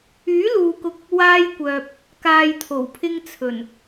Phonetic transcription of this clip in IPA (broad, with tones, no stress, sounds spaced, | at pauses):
yː˨˥ l uː˨ k ʊ˧ k̚ | w aː˧ j kʷ œː˨ p̚ | k aː˨ j t̪ʰ o˨˩ w pʰ ɪ˧ ŋ t͡sʰ ɵ˨˩ n